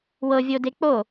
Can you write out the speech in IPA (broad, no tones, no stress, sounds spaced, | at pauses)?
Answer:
w ɤ vʲ o d e k͡p o